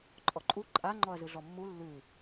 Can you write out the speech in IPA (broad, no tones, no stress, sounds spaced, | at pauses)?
ǃʼ ɔ ǃʼ u ǃʼ a ŋ͡ǃ ɔ ɐ̯ z ɯ ɮ ɔ mː u lː ʉ